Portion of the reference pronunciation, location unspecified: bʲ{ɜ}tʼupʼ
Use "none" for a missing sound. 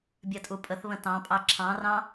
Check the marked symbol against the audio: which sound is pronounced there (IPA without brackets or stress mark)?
ɜ